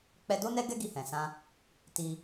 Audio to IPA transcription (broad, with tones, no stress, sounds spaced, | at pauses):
k͡p ɛ˧ d o˦ n ɛ˦ ɡ ɛ˦ ɡ i˧ h ɛ̃˨ s ã˧ | t i˧